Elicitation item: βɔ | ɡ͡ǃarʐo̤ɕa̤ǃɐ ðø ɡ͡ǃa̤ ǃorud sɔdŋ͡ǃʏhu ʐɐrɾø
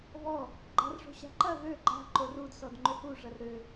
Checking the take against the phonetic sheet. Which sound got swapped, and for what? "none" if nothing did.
none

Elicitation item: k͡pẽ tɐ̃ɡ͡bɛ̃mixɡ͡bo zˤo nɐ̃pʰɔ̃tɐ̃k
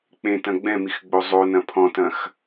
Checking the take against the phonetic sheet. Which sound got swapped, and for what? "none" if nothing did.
k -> x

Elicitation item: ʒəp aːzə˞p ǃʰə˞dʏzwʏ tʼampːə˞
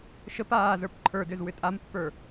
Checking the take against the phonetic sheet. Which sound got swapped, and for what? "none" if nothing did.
ʒ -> ʃ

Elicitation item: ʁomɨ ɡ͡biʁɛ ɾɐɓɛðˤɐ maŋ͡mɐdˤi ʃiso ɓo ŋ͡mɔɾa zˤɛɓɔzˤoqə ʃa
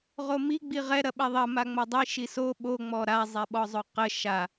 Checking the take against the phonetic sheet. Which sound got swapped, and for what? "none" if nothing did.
ɨ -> i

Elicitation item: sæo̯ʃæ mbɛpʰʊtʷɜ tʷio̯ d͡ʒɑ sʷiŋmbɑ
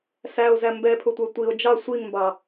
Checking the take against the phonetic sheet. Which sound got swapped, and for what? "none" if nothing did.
ʃ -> z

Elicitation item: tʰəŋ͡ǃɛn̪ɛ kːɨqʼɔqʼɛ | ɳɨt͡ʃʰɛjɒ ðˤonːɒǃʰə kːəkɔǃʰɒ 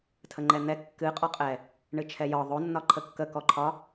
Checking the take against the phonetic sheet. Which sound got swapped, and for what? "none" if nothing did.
none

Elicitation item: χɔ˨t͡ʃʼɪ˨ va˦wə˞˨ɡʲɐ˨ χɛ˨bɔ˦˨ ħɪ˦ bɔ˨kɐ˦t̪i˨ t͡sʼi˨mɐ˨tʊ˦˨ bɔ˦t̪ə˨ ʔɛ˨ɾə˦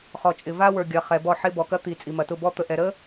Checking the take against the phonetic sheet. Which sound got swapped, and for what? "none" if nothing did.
none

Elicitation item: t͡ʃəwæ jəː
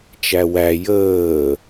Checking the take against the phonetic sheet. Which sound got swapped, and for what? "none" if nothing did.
ə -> æ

